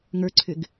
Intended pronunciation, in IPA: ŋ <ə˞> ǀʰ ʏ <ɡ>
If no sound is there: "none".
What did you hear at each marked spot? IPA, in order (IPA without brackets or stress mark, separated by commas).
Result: ə˞, ɡ